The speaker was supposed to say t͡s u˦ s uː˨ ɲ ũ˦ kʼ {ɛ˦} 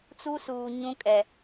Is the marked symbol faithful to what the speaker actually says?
no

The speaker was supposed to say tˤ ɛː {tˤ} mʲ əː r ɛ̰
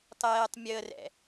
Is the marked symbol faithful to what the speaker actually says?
yes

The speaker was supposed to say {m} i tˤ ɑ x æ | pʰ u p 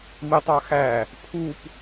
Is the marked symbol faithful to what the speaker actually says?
yes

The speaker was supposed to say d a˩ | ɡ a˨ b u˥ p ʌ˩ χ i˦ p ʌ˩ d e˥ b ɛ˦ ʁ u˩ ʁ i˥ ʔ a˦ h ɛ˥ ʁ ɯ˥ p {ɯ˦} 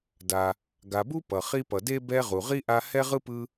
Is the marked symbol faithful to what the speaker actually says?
yes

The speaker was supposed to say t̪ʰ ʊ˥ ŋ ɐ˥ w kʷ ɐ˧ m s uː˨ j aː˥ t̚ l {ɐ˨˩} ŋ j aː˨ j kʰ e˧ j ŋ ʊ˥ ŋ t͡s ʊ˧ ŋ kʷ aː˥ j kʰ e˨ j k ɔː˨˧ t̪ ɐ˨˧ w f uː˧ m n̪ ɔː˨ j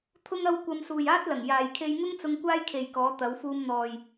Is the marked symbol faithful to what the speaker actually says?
yes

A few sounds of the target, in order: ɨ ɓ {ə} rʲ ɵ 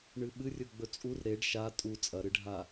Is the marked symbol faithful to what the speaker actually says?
no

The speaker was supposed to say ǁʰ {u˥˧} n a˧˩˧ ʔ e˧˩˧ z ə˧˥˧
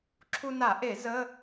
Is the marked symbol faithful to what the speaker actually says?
no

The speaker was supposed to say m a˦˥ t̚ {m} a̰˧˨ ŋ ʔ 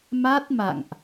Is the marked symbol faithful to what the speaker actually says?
yes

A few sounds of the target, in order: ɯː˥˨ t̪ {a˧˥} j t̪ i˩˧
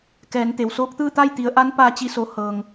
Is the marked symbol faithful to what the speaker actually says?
no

